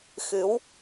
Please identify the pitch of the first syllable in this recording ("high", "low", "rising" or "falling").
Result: rising